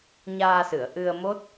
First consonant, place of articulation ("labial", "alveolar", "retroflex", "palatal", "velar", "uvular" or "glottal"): palatal